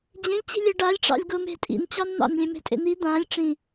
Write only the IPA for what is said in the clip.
d͡ʑẽlʲt͡ɕi̤ lʲɘɖalʲ ʈ͡ʂɑ̰lʲɡʊme̤ tʼḭnt͡ɕɑnn̪ɑ̰n lʲẽme̤tʼḛn̪i d̪ãlʲ ʈ͡ʂĩ

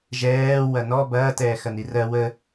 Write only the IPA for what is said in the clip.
ʒɛː wɐnɔ bɐː tɛːxɐnirɜ wə

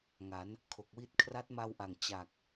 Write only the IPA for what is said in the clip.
ŋa˩˦n | kʰo˨˩k̚wi˥˩t̚ kʰra˦˥t̚ma˧wʔa˨˩ŋ t͡ɕa˨˩k̚

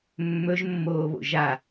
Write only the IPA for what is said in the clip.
mːɵʒmːoːβo̰ ʒa

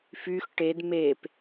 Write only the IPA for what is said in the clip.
fyx ʈed mep

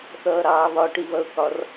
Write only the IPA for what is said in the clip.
θʌːɾɑːβɒ ʈiβʌʊ̯kɒr

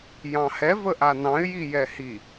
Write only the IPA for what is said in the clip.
jɑ̃hɛ vəʔanɑ̃ɪ̯ jijɛhi

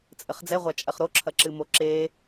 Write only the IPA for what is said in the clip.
t͡sʼɘχd͡zɛʁʷa t͡ʃʼɐχɾoǁʰɐ ǁɨmoǁe

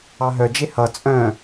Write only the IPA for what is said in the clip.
ɑɦœd͡ʒe hʌ t͡sʼœ̃

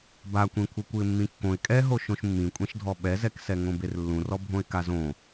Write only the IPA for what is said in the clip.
bakʷĩ kʷʰɘkʷɨɪ̯mːĩkːõɪ̯ kʼɛɦo ʃõʃmːĩkʷʼẽʃdʱɔ ɓɛzɛksɛ ŋõberlːũrɔ bʱõɪ̯kazõ

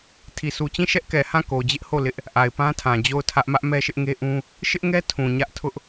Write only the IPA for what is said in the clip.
tʰi˨su˨t͡ɕĩ˦˨ ʃɛ˦ʔkɛ˨hã˦˨ ko˨d͡ʑɪ˦ʔho˦˨ lɪ˦ʔ | ʔa˨ɪ̯pã˦tʰã˨ d͡ʑo˦˨ʊ̯tʰä˦ʔ mä˦ʔmɛ˦ʃɪ˦ʔŋe˦ ʔũ˦ | ʃɪ˦ʔŋɛ˦ tʰũ˨ɲä˦ʔ tʰʊ˦ʔ

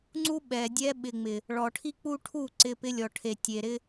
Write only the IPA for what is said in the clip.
ŋ͡ǀu˦ ɓɛ˨dʲɛ˦ ɓɪ˨ŋ͡mɪ˨ | ɭɔ˨ʈʰi˦k͡pu˦ʈʰu˦˨ ǀɪ˦pɪ˦ lʲɔ˨ʈʰe˨tʲe˨ ɾɪ˦

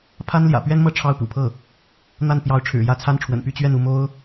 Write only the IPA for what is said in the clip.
pʰa˥nljä̰˨˩ pɥɛ˥nmɤ˥˧ ʈ͡ʂʰɑ˥˩ʊ̯pṵ˨˩pʰɤ˥˩ | n̪a˥˩npjɑ˧˥ʊ̯ ʈ͡ʂʰɻ̩˨˩jä˥˩t͡sʰa˥nʈ͡ʂʰwə̰˨˩n py˥˧t͡ɕɥɛ˥˧nu˥˩ mo˥ʊ̯

